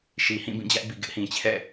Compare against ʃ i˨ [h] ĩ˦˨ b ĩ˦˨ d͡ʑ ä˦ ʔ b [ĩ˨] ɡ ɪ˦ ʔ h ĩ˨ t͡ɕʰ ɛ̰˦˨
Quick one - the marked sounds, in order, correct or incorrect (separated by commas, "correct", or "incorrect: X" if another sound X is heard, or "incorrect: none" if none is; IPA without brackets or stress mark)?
correct, incorrect: i˨